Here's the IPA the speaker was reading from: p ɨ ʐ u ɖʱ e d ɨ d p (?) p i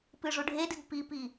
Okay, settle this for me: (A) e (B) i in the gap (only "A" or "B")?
B